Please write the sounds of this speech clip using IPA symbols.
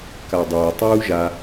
kadˤʊː tˤuːʒa

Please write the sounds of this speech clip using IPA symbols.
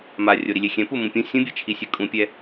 ma rʲoɾilʲexʲɛ̃ pumũpʲũ sʲũbʲet͡ʃʰi sʲɛkʼũpʲɛ

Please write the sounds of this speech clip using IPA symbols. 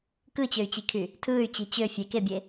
kɯt͡ɕøy̯t͡ɕikʰy | tʰɯːy̯t͡ɕi t͡ɕø fʲekebʲe

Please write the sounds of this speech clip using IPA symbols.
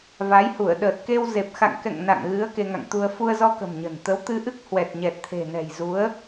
va˨˦jhu˧˩ə̯ ɗəː˨˩t̚ ke˧w ze˨˩p̚xa̰˧˨ŋkɛ̰˧˨ŋ na̰˧˨ŋɣɨ˨˦ə̯ ke˧ŋa̰˧˨ŋt̪u˧ə̯ fu˧ə̯zɔ˧kə̤˨˩m ɲə̤˨˩n t̪ə˨˦wt̪ɨ˧ʔɨ˦˥k̚ hwɛ˨˩t̚ɲɛ˨˩t̚t̪ʰe̤˨˩nɛ̤˨˩j zu˨˦ə̯

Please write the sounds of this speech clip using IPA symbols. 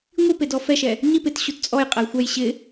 ŋʷipedɔ fɛʃɛ | ɲip ɪt ɕutt͡sʼɔj qʼɛjxʷɛj ɕɪ

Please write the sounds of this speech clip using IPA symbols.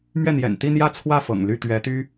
mɥɛ˥˩n̪jɛ̰˨˩n t̪i˥˧n̪jä˥˧ t͡sʰwä˥˩fɤ̰˨˩ŋ ly˥˩t̪ɥɛ˧˥t̪y˥

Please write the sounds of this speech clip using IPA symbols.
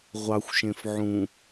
ʁʷɑxʷʃẽf ʕũ

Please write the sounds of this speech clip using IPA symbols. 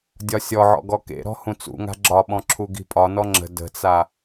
dʲɒsʲɔʕɔ̰ ɡɔkḛɾɔ̤ hũt͡sṵŋa̤ ɡ͡ǁɒɓɔ̃ ǁʰuɡi̤pʼɒnɔ ŋ͡ǁə̤ də̤t͡sa

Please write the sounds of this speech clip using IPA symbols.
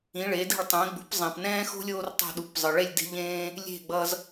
ĩ˩˥ɭe˩˥de̤˥˩ɭ tˤẽ˩˥ɡ͡bṳ˩˥p zˤĩ˩pnɛ̃ː˥xo̤˥lʲ oː˥rtˤo̤˥˩ ɗu˩˥pzˤɯ˩ɭe˥˩lʲ de̤˥ʎẽː˥ | lʲe̤˥˩ɡ͡bʌ˧z

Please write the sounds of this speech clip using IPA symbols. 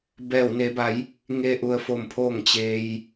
bɛː˧˩wne˩˧ba˩˧j | ŋe˧ʔu˩ə̯fo˧˩m pʰoː˧˩ŋt͡ɕeː˩j

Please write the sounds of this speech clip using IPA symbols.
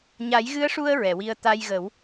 ɲa˨˩˦jɣɨ˧˥ə̯ʂu˧ə̯ ɹɛ˨˩˨wi˧ə̯ t̪a˧jɣə˨˩˦w

